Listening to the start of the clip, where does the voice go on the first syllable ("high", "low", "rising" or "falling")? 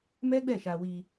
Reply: high